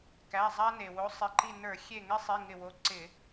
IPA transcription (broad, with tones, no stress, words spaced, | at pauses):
kæ˩˧˩ zˤa˦ne˩wo˨˥ sˤɪ˩˧˩ǃi˧˩nə˞˧˩˧ xʲe˧˩ŋɪ˦sˤi˩˧˩ ŋɪ˧˩wo˨˥ǀɪ˧˩˧